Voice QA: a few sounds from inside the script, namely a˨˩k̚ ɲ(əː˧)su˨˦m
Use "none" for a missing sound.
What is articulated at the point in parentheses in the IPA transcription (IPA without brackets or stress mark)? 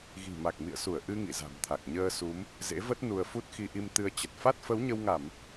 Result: əː˧